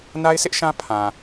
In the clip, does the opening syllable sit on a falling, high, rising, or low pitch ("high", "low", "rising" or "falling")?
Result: high